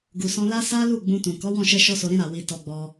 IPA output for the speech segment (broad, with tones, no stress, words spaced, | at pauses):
ɡu˨sɔ̃˧la˦ sa˦lu˦˨ ɡ͡bũ˧tũ˨ kɔ˨˦wɔ̃˦˨ʃɛ˧ ʃɔ˦so˧ɾĩ˦ ɾa˧wi˧ tɔ˧ɡ͡bɔ˧